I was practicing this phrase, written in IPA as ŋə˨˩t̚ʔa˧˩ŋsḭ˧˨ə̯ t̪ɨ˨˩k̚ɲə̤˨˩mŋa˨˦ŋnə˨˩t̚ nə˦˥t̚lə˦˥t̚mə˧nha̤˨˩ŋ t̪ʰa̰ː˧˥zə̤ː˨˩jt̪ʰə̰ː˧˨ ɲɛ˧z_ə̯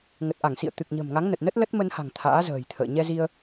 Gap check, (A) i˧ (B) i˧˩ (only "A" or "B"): A